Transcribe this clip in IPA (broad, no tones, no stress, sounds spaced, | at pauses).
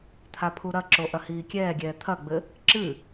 t̪ʰ a pʰ u ɾ ɐ ǁ o ʔ ɐ h iː kʲ ɛː ɡʲ ɛː t̪ʰ ɐ ɡ͡b ɘ | ǁ ɨ